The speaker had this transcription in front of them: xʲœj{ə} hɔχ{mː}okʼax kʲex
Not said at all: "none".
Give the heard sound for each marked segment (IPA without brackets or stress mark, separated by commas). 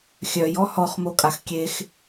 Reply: ɔ, m